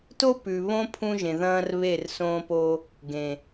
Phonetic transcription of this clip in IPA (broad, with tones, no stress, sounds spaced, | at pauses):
t o˦ p ʉ˨ β õ˦ pʰ ũ˦ ʒ ẽ˨ ð ɐ̃ː˦ r β e˦˨ r s õː˦ p o˦ | ɡ ẽ˨